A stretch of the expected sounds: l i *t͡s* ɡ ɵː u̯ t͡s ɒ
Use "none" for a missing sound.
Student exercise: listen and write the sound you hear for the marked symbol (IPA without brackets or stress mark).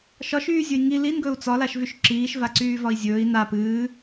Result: n